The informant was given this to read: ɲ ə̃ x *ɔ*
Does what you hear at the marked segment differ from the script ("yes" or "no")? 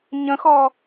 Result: no